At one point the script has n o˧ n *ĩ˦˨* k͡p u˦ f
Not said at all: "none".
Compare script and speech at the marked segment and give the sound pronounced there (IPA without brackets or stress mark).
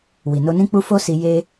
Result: ĩ˦